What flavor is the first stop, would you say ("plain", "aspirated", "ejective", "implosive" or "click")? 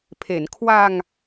aspirated